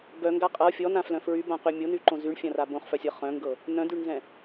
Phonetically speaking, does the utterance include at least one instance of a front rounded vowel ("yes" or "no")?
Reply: yes